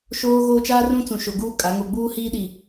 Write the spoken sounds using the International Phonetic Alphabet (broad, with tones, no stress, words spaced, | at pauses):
ʃoː˦ɣoː˦ t͡ʃaː˦rũ˦t͡sũ˨ ʃo˨ɡuː˦ kʼa˨˦ ŋo˨ɡ͡buː˦hiː˦ ɗi˦˨